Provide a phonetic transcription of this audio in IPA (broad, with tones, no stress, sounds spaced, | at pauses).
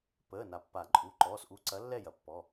p əː˩˧˩ n a˩ pː a˨˩˦ ǃʼ u˩˧˩ ǃ ɔː˩˧˩ s ʔ u˨˥ ǀ ɐ˨˥ lː ɛ˥˨ j ɐ˩ pː ɔ˩˧˩